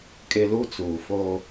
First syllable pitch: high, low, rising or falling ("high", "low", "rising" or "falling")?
low